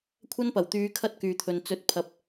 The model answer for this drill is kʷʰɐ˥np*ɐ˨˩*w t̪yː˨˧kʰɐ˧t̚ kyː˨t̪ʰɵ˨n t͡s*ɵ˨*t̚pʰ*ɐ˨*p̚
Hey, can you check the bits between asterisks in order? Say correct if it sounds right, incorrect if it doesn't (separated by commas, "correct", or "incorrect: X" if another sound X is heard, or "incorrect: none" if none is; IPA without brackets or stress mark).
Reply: correct, incorrect: ɵ˨˥, correct